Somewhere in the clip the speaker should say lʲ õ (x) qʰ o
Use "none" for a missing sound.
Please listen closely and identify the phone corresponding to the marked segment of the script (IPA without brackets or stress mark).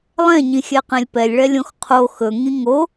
x